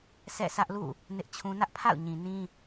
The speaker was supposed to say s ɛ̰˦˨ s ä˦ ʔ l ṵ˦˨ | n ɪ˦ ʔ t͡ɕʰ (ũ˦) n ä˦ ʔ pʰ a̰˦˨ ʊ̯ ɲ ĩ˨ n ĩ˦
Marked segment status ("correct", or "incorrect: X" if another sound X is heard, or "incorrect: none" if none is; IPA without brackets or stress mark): correct